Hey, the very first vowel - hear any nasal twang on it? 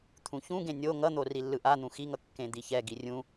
yes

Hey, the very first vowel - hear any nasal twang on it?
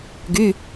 no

